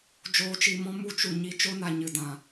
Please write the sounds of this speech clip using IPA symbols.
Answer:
d͡ʒ oː˨˦ t͡ʃ i˨ m ɔ̃˦ m u˧ t͡ʃ u˨ ɲ i˧ t͡ʃ o˦ n a˨ ɲ ɨ˨ d ã˨

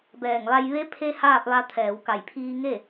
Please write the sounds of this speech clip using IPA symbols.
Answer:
b ɛː˧˩ ŋ ʋ a˧ j ʋ e˧˥ pʰ e˧ h aː˥˨ p̚ ʋ a˧ t̪ʰ ɛː˩˧ w k a˧˩ j pʰ iː˧ ŋ e˥˨

